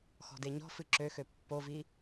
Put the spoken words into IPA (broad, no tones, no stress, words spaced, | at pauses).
xɔ̤deɲɔ̤fɨ ǁøxø pːovi